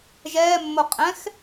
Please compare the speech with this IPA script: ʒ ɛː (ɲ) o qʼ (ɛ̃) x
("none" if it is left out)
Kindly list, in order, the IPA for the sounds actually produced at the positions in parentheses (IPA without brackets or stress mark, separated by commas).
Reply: mː, ɛ̃